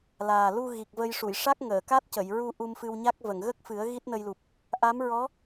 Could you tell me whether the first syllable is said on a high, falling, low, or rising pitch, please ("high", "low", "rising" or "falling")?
low